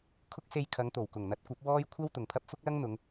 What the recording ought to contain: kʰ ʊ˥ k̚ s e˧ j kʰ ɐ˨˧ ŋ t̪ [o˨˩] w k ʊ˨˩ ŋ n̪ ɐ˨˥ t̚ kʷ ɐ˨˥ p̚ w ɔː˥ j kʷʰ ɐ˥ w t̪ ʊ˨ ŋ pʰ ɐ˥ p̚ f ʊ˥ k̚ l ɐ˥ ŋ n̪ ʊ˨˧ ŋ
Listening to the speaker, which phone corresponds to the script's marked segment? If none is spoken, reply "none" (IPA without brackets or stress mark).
o˨˩